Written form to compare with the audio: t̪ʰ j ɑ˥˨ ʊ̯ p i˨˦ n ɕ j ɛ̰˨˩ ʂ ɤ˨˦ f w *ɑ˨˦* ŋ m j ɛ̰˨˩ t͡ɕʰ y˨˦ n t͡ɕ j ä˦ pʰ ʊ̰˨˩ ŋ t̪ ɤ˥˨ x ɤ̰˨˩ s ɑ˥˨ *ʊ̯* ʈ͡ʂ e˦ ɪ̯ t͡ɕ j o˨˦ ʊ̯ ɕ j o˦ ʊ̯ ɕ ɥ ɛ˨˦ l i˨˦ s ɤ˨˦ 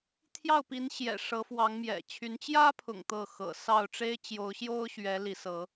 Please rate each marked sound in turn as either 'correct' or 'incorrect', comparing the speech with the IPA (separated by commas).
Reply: correct, correct